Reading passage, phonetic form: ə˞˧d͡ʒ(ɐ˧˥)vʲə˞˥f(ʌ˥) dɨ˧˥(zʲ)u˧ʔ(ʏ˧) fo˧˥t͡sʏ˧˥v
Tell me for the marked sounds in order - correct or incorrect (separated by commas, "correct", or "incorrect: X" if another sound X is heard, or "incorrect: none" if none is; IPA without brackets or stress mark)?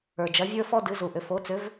correct, incorrect: ɔ˥, incorrect: z, correct